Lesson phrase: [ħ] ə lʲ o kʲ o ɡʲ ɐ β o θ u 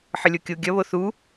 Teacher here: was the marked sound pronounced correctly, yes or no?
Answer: yes